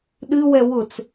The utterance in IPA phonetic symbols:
ɗ ɨ w ɛ w ʊ t͡s

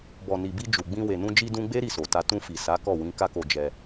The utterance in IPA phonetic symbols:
b ɔ˨ n i˨ b i˧ d͡ʒ u˨ ɡ͡b ĩ˧ w e˨ n ũ˧ d͡ʒ i˧ d ũ˧ ɡ͡b e˦ ɾ i˦˨ s o˨ t a˧ t ũ˧ f i˨ s a˨˦ k ɔ˦˨ w ĩ˨˦ k a˦ k o˧ d͡ʒ ɛ˧

